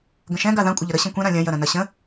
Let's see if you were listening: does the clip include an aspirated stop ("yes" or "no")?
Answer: no